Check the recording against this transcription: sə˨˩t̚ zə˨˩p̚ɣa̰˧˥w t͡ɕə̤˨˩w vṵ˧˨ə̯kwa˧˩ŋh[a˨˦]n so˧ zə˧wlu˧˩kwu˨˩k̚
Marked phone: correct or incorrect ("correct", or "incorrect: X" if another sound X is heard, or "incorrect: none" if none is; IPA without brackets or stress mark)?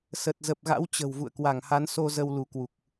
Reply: correct